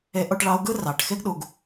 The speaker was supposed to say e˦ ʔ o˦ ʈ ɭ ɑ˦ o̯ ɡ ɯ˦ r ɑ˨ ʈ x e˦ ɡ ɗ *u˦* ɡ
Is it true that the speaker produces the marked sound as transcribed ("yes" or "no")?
no